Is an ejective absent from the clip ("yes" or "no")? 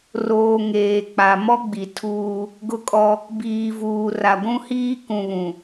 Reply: no